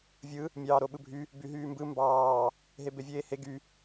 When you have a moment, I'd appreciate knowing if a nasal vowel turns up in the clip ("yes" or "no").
no